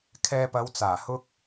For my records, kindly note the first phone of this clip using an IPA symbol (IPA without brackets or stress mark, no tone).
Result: kʰ